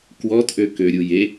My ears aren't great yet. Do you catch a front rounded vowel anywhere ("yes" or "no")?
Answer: yes